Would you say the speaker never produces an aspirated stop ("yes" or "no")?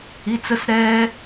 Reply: yes